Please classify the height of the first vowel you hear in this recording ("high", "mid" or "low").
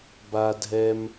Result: low